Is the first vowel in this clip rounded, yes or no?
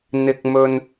no